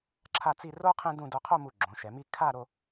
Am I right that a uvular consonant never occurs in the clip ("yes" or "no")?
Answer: no